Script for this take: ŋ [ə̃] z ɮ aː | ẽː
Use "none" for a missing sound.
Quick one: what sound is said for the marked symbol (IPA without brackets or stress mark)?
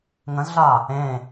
ə̃